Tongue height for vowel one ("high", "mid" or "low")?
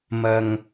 low